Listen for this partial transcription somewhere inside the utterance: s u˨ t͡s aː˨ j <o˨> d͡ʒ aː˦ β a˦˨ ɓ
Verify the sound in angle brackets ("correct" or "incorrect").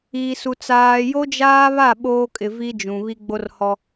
incorrect